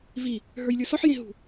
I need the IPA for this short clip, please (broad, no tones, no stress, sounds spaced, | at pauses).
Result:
v i | ɦ ə˞ j lʲ ə˞ s ɔ ħ j ẽ ɦ ṳ